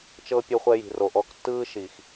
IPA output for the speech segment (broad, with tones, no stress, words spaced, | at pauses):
t͡ʃɤ˦ pʲo˧χʷɛ˧ji̤˨ ro˨ʔɔ˧ktːɯː˦ ʃi˨x